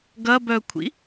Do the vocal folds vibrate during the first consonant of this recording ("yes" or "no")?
yes